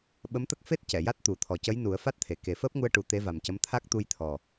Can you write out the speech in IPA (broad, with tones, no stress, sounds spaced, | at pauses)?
ɓ ə˧˥ m t̪ ə˦˥ k̚ f e˦˥ t̚ c ɛ˨˩˨ j a˦˥ t̚ t̪ u˨˩ t̪ʰ ɔ˨˩ c ə˧˥ j n u˨˩˦ ə̯ f a˦˥ t̚ t̪ʰ e˨˩˨ k e˨˩˦ f əː˦˥ p̚ ŋ u˧ ə̯ ʈ u˨˩˦ t̪ e˧˥ v a˨˩ m c ə˧˥ m t̪ʰ a˦˥ k̚ t̪ u˧ j t̪ʰ ɔ˨˩